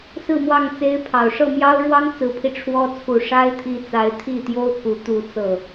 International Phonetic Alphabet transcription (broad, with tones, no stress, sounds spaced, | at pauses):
s ɹ̩˥˧ m w ɑ˥˩ ŋ t͡s e˥ ɪ̯ pʰ ɑ˨˩ ʊ̯ ʂ ɤ˥˩ m j ɑ˥ ʊ̯ ɻ w ɑ˥ ŋ t͡s ɹ̩˧˥ pʰ i˧ ʈ͡ʂʰ w ɔ˥ t͡sʰ u˨˩ ʂ a˥ ɪ̯ t̪ʰ i˧˥ t͡s a˧˥ ɪ̯ t̪ʰ i˥˩ t̪ j o˥ ʊ̯ k u˧˥ t̪ u˥˧ t͡s ɤ˥˩